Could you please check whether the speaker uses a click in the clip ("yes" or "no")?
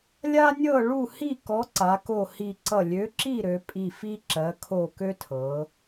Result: yes